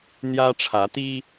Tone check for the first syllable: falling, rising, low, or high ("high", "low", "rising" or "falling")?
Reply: high